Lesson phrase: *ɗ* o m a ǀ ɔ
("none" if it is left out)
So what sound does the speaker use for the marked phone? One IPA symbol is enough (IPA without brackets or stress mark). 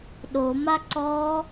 ɗ